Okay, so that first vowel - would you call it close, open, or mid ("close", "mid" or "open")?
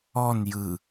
mid